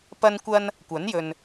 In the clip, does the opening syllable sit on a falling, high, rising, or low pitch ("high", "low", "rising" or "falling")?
high